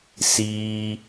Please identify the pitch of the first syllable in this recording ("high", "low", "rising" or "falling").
high